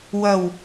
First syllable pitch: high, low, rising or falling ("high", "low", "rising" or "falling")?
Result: low